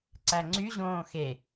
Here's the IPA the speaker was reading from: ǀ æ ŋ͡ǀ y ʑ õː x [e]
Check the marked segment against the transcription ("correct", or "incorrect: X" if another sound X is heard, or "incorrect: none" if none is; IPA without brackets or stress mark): correct